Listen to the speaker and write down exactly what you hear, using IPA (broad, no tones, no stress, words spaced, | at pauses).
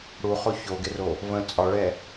ɽuχo çoɡɪro | və̃ t͡sʼɒɭɛ